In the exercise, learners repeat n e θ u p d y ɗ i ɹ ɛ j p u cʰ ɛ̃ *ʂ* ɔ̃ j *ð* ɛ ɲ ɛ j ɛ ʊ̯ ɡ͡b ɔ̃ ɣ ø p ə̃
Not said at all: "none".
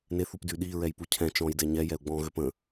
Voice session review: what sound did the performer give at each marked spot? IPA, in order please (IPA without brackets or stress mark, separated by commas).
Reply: t͡ʃ, d